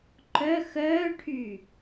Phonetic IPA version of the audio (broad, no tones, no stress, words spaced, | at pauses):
ǃœ xœːʈʰy